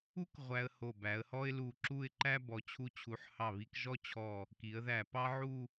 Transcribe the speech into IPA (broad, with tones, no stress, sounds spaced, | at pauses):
u˥ k ʁʷ æ˧ ə̯ h o˧˩ b æ˩˧ ə̯ h ɔ˥ ɪ̯ l u˧˩ ǁ u˥˧ ɪ̯ ǃ æ˥ b ɔ˩˧ t͡ɕʰ u˧ t͡ɕʰ u˩˧ ħ h ɑ˧˩ β i˧ k ʒ ɔ˥˧ t͡ɕʰ ɔ˧˩ | k i˩˧ ə̯ ð æ˧˩ p ɑ˥ ʕ u˥˧